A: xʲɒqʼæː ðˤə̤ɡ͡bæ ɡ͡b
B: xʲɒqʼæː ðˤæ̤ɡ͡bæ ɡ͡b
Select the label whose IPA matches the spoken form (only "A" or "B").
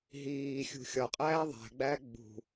B